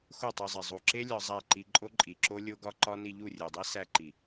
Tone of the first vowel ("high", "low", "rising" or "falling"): falling